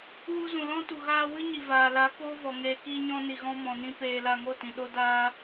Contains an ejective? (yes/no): no